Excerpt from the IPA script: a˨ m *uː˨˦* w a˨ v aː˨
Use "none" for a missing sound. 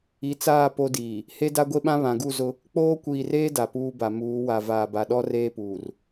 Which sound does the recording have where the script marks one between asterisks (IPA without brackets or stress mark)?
uː˨˦